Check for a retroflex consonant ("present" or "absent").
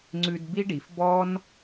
present